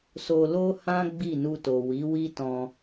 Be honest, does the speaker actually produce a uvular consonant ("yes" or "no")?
no